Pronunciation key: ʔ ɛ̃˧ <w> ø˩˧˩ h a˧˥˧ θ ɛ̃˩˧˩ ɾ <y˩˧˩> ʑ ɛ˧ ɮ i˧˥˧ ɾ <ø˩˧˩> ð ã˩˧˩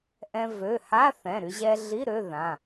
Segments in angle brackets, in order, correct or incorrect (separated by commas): incorrect, incorrect, incorrect